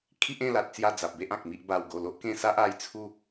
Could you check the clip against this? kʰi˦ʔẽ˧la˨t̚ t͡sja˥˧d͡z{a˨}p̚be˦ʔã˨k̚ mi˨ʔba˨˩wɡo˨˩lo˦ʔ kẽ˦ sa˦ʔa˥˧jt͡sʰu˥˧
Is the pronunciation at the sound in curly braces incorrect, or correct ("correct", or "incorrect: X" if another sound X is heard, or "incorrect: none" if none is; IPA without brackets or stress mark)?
correct